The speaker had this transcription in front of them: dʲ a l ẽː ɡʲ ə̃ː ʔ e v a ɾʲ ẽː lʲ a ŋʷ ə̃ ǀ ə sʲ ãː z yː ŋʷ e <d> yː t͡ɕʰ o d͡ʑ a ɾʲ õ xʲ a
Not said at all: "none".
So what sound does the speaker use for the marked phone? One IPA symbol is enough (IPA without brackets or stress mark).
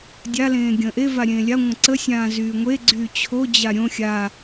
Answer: ɡ͡ǀ